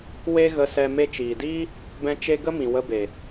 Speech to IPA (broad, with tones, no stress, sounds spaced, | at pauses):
w e˦ ɣ ə˧ s ɛ˧ m e˧ t͡ʃ iː˨ d iː˦ | b ɛ̃˦ t͡ʃ e˦ ɡ ə˦ m ĩ˨ w ə˧ b e˨